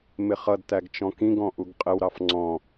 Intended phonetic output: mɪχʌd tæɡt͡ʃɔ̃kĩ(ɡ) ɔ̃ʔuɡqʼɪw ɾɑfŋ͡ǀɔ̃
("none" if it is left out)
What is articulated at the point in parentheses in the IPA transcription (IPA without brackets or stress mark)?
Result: ɡ